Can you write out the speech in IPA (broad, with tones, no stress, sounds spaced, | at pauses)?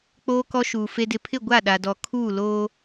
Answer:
k͡p oː˨ k ɔ˨ ʃ uː˨ f e˨ d ɪ˨ pʰ ɪ˦˨ ɡʷ a˦˨ ɗ a˨ d ɔ˨ kʰ uː˦˨ l oː˦